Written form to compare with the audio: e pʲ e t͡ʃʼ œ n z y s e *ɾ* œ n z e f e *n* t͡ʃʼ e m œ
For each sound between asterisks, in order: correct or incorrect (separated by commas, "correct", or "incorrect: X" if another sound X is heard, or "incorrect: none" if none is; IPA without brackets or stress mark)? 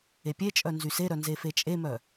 correct, incorrect: none